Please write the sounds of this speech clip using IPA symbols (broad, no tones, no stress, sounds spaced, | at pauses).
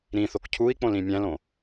ɾ ĩ θ o k cʰ u i̯ k͡p õ l ĩ mʲ æ̃ l õ